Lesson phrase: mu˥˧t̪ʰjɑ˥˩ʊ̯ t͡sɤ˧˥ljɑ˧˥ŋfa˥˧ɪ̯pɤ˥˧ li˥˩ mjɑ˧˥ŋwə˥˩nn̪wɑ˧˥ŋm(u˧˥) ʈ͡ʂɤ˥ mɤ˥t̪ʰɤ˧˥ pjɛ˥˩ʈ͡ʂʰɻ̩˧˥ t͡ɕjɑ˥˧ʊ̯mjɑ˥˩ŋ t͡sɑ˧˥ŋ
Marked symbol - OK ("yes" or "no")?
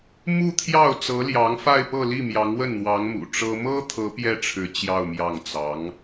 no